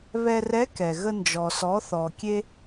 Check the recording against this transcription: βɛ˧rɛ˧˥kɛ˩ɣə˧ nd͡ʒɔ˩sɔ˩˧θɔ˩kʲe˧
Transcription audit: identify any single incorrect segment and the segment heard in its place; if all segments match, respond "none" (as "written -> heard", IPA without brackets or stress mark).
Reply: none